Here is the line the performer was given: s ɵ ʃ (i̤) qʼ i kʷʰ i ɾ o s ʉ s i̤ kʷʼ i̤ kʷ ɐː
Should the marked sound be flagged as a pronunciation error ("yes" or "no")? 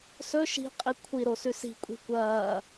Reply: no